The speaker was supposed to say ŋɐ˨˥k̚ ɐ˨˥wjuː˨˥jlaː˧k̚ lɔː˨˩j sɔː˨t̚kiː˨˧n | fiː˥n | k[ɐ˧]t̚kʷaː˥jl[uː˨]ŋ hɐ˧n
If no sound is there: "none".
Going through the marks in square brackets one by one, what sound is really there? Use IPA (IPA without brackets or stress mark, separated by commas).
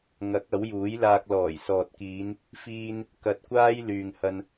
ɐ˧, yː˨